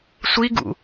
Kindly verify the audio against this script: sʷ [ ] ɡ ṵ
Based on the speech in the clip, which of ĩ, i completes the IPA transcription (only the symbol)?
i